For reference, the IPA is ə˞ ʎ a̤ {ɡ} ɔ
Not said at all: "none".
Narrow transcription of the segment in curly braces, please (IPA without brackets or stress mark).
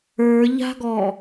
ɡ